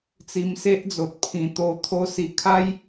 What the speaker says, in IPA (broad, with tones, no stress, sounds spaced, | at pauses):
t͡s i˧ m s e˦ ʔ d͡z o˨ t̚ pʰ ĩ˨˩ t̪ o˧ t̪ʰ o˧ s i˨˩ kʰ a˦ j